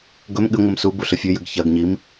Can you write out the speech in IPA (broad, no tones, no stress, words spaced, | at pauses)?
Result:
ɡɵm ɠɨŋʷɨm subu ɬɨfʲʉjɨɡ çɐɡɲim